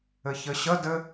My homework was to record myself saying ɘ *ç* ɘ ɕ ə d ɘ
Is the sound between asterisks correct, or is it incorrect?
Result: correct